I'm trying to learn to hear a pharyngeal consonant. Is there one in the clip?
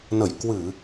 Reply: no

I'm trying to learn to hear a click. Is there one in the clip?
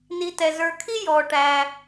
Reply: no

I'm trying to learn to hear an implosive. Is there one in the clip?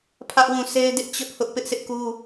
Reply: no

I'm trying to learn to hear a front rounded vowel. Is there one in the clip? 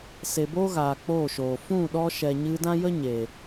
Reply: no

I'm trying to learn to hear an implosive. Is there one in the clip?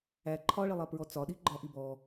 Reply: yes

